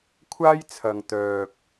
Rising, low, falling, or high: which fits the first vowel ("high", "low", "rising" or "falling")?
high